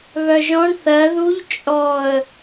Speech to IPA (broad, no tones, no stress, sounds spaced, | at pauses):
β œ ʒ ɔ̃ ɳ θ ɜ ð u ʎ t͡ʃʼ ɔ ə̯